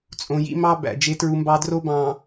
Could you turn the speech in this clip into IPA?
t͡sʼõ˨jḭ˦mɑ˦ bæ̰˨d͡ʒe˦tɹu˦mbɑ˦ dro˦bɑ̃˨

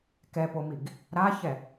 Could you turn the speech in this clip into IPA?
kɛpomiɡ | ɾaçɛ

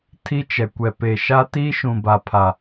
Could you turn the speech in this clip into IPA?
tʰi˦t͡ʃɛ˨ kʷɛ˨pe˨ʃa˦ tiː˦ʃũ˨ba˨pʰa˨

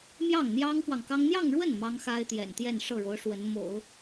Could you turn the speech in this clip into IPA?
mjɑ˥˩ŋn̪jɑ˥ŋfwɑ˨ŋkɑ˥ŋ n̪jɑ˥˧ŋɻwə˥˩n mɑ˥ŋxa˥ɪ̯t̪jɛ̰˨˩n t̪jɛ˥˧nʂɤ˥˩ɻo˧˥ʊ̯ ʂwə˧˥n mo̰˨˩˦ʊ̯

